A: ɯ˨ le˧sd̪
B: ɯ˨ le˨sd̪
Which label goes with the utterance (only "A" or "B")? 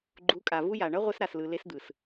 A